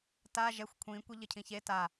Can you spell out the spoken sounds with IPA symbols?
t a ʒ ɛ xʷ kʷʰ ĩ kʷ e ʎ ɘ cʰ ĩ ç e t a

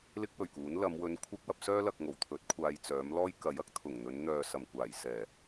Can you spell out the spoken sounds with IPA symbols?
l ɪ˥ k̚ w ɵ˨˩ ɥ k uː˨˥ n l ɐ˨˧ m w ɵ˨˧ n kʷʰ ɪ˥ k̚ w ɐ˧ p̚ s œː˥ l ɐ˨ k̚ ŋ o˨˩ w t̪ʰ ɵ˨˥ t̚ kʷʰ aː˨ j t͡s œː˨˥ m l ɔː˥ j k ɐ˨˥ j ɐ˥ k̚ t̪ʰ ʊ˨˩ ŋ n̪ ɵ˨˧ n n̪ œː˨ s ɐ˨˩ m kʷ aː˨˩ j s ɛː˨˩

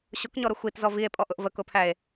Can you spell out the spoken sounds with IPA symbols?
ɕ ʊ k ɲ ɔ ɾ ʊ xʷ i t z ɔ v i e̯ pʼ ɔ ʔ ʊ ʔ v ə k ʊ pʰ æ e̯

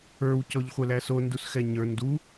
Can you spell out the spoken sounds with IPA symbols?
ə˞ w c ɔ ʎ χʷ ɛ l æ s o n d u s x ɛ ɲ ə˞ n d u

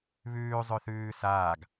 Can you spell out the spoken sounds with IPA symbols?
β ʉː zˤ ʉ θ ʉː s aː ɡ

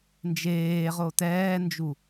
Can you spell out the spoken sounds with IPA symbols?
n d͡ʒ eː ʁ o t ɛː n d͡ʒ u

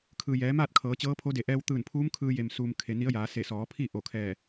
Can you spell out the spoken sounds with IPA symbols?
kʰ ɯː˩ j ɛː˩˧ m aː˥˨ t̚ kʰ ɤː˩˧ t͡ɕ ɤː˧˥ pʰ o˧˥ d e˩ ʔ ɛː˧ w t̪ ɯː˧˩ n pʰ uː˧˥ m kʰ ɯː˧ j e˩ m s uː˧ m kʰ e˩ n i˧˥ ə̯ j aː˩˧ s e˧˩ s ɔː˩˧ pʰ i˥˨ ʔ o˧˩ kʰ ɛː˧˩

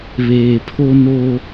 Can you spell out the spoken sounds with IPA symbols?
β eː˨ pʰ o˦ n o˦

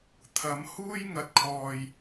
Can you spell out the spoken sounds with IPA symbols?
t̪ʰ ɐ˨˧ m h uː˥ j ŋ ɐ˨ t̚ kʰ ɔː˨ j

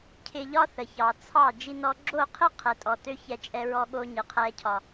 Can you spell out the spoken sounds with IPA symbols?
cʰ ɪ˧ ʎ ɒ˦ θ ə˨ ç ɑ˨ t͡sʰ ɑ˦˨ d͡ʒ i˦ n ɔ˦ ɡ͡ǁ o˦˨ qʰ ɪ˦ qʰ ɛ˧ tʼ ɔ˧ t ø˦ ç ɛ˧ t͡ʃʼ ɛ˧ ɹ ɔ˧ ɠ o˧ ɲ ɪ˨ qʰ ɛ˦ cʰ ɒ˧

